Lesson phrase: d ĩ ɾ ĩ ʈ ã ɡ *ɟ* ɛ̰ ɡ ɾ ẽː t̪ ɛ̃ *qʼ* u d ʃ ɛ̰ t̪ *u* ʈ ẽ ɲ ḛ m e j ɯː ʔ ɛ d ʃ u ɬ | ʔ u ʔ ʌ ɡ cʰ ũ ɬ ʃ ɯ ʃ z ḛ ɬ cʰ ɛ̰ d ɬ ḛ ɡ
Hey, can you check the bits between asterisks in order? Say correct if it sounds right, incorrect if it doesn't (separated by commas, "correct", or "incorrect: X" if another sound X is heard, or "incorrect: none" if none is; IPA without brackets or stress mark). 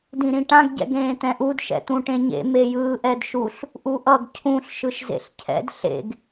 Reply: correct, incorrect: ʔ, incorrect: ũ